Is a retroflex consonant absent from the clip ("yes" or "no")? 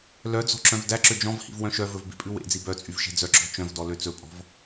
yes